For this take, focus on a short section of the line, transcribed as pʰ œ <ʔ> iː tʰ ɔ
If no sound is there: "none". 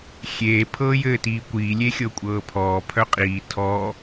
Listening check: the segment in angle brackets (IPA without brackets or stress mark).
qʼ